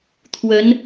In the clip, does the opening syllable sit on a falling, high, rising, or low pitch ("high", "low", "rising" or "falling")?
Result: rising